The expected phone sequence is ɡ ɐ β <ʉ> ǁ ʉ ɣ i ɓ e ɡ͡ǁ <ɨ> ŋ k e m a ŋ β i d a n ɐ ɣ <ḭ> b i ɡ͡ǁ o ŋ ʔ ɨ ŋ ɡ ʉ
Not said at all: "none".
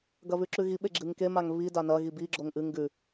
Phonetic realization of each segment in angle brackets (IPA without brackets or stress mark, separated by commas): ʉ, ɨ, i